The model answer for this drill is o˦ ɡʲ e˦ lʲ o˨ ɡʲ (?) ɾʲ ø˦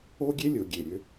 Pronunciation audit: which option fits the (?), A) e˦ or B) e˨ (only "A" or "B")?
B